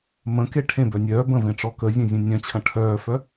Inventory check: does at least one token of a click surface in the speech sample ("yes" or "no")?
no